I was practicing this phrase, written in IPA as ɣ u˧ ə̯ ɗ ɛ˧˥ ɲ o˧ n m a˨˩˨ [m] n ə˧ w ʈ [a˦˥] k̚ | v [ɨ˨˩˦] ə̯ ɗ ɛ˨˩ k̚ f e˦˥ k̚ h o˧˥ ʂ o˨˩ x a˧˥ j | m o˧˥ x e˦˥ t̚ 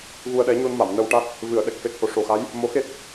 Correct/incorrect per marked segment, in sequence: correct, correct, correct

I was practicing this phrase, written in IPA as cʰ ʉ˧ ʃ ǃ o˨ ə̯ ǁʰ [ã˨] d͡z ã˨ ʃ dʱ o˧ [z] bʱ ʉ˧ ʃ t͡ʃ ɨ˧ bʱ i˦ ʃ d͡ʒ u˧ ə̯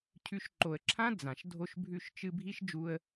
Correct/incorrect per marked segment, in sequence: incorrect: ã˦, incorrect: ʃ

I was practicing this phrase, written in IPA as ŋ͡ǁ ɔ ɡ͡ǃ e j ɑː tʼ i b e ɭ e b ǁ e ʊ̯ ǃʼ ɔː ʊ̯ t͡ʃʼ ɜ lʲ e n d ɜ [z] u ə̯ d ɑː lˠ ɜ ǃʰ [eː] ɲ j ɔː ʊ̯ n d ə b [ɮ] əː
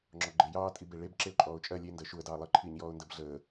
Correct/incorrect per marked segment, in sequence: incorrect: ʃ, incorrect: iː, correct

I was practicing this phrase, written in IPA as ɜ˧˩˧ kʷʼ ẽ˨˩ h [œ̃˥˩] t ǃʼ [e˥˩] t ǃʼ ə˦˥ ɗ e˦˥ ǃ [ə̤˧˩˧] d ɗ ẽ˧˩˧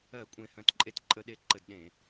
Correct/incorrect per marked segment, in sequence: correct, correct, incorrect: ə˧˩˧

